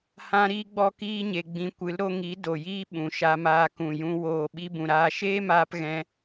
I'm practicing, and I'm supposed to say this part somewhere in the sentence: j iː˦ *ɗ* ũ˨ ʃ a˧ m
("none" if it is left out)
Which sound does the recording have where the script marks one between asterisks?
ɓ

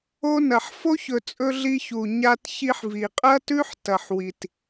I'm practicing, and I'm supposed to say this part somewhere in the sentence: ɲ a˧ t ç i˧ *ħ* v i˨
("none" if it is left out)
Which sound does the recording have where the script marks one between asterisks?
ħ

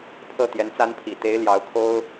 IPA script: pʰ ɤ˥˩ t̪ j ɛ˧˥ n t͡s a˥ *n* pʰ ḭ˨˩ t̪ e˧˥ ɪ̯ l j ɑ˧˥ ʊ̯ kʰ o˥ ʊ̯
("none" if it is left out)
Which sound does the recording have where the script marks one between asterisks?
n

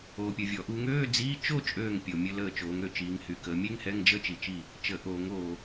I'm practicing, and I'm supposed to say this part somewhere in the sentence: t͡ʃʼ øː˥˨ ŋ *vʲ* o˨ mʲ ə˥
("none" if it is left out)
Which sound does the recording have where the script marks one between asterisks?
pʲ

